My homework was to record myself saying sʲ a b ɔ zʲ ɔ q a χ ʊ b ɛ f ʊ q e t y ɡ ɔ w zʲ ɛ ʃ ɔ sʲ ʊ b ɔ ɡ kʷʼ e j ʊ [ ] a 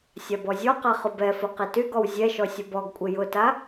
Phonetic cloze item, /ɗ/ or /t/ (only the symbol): t